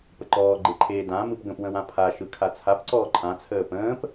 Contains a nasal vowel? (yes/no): yes